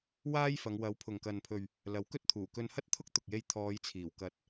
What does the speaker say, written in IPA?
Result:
waː˥jfɐ˨˧ŋ wɐ˨˥wpʰʊ˨ŋkɐ˨npʰɵ˨ɥ | lɐ˨˥wkɵ˥t̚ t̪ʰuː˨˩kɵ˧nhɐ˥t̚t̪ʰʊ˥k̚ t̪ʊ˨k̚je˧j t̪ʰɔː˨˧j t͡sʰiː˨˩wkɐ˨˥t̚

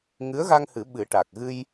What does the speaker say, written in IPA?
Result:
ŋɨ˧˥ə̯ɣa˧ŋ hɨ˨˩˦ɓɨ˨˩˦ ʈa˨˩k̚ ɣɨ˧j

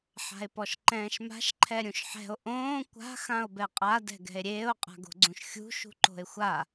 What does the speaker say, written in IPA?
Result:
ħa̤e̯pɔʃǃɛ̃ːʃma̤ʃ ǃʰɛɾʲũʃħɛ̤o̯ ʔõː kʷa̤ xão̯bɛqʼa dɛ̤ɡɛ̤e̯ɾʲeːo̯ qʼa̤ɡo̤ɡ͡ǀũʃxʲṳ ʃṳǃo̤e̯xʷa

